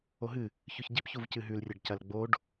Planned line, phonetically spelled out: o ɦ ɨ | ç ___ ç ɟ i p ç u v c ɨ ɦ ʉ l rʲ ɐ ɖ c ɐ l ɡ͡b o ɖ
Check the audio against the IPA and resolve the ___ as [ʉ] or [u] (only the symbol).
ʉ